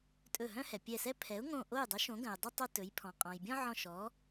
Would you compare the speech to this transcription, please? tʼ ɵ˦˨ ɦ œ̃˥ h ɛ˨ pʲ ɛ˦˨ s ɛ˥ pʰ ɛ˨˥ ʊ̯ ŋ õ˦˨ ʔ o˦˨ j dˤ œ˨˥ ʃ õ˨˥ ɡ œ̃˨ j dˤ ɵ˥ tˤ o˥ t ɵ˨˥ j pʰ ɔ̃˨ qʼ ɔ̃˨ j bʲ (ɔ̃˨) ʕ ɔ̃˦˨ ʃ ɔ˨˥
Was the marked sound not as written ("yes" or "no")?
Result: yes